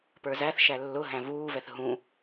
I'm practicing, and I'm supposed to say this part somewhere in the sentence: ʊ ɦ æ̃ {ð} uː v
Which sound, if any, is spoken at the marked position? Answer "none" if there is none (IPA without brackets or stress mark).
v